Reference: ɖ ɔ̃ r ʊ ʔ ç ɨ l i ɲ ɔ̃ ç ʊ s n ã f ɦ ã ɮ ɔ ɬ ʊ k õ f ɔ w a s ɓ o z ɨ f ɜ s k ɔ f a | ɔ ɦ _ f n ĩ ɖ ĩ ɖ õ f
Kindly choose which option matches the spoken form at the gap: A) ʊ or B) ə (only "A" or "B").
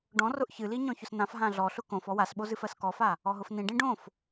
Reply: A